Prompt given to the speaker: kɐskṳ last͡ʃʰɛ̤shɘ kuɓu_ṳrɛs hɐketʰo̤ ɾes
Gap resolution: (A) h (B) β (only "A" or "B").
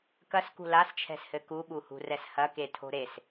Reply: A